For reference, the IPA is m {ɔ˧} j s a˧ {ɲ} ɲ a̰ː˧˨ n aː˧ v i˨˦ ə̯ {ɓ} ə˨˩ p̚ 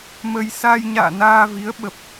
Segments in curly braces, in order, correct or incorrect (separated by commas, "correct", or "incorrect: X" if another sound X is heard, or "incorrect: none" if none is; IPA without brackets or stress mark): incorrect: ə˧, incorrect: j, correct